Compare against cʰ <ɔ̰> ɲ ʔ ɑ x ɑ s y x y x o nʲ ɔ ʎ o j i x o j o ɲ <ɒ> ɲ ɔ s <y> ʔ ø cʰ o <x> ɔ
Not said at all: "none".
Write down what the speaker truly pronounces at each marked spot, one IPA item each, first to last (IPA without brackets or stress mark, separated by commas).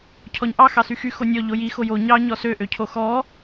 ɔ, ɑ, ø, x